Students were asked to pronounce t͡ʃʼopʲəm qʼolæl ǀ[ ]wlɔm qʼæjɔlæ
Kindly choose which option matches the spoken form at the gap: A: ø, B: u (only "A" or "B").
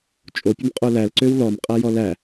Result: A